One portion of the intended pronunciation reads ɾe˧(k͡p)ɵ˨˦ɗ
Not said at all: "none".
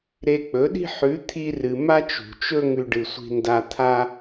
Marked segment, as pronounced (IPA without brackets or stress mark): k͡p